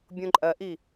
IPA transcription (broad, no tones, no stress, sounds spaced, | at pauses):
bʲ õ ǃʼ ɐ ʔ i